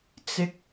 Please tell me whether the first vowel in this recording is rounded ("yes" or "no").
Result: no